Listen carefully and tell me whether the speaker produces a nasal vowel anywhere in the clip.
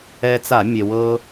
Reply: no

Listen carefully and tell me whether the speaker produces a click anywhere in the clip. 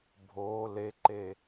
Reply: yes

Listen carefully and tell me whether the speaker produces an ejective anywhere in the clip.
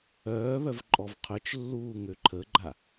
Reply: yes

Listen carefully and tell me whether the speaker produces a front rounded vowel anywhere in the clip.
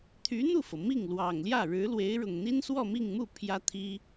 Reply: yes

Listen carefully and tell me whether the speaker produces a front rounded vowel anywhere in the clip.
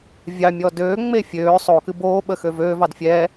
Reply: yes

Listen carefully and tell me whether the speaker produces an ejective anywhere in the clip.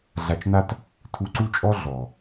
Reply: yes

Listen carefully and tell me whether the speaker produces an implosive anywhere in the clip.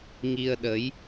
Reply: yes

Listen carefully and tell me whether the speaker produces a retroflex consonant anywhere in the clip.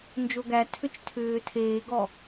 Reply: no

